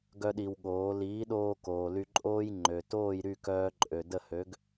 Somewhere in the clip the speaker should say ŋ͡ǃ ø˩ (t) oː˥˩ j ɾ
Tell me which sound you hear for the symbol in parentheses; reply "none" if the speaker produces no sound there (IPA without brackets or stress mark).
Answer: t